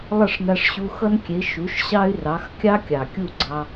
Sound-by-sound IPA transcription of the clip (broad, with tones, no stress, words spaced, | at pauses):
lˠʌ˥˩ʂna˧ʂɕu˧ xʌ˥nkʲe˩˥ ʃu˩˥ʃɕɑ˥y̯rɑ˩˥x kʲɑ˥kʲɑ˩kʲu˥˩ɡ͡ǀɑ˧